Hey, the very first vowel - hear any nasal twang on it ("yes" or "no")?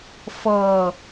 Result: no